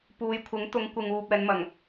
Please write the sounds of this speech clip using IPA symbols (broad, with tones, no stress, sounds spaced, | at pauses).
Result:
p uː˨˧ j kʷʰ ɪ˨˥ ŋ t̪ ʊ˨˧ ŋ kʷ ɪ˨ ŋ uː˨ p̚ ɛː˨˧ n m ɐ˨˩ ŋ